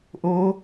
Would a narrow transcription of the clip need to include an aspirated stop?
no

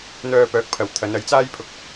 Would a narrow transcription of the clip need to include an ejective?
no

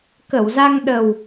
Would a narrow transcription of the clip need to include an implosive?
yes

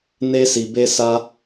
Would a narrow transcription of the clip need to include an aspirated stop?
no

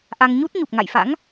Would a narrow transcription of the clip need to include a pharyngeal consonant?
no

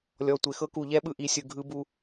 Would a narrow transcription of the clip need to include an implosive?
yes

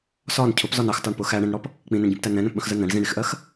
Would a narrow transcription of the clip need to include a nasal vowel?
yes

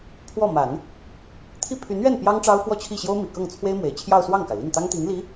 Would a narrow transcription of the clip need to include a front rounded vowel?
yes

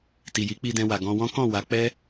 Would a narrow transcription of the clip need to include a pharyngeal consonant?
no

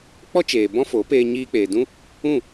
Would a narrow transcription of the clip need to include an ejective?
no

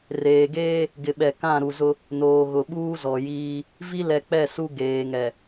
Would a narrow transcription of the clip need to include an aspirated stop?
no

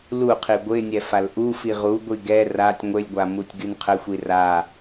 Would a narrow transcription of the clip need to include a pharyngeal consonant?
no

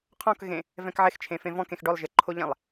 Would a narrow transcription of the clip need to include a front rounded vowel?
no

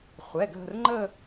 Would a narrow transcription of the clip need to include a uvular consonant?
yes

